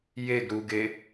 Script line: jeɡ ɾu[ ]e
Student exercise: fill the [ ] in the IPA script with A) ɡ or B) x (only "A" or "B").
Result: A